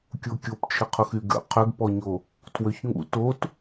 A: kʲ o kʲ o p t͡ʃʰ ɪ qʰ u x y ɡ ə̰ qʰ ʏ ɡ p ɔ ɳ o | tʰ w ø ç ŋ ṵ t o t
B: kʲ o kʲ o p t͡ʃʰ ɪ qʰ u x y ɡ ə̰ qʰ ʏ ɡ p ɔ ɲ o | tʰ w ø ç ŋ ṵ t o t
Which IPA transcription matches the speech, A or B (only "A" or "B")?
B